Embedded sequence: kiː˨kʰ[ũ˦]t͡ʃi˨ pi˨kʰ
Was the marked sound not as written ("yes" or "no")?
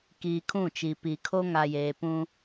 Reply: yes